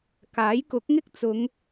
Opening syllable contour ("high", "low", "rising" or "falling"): rising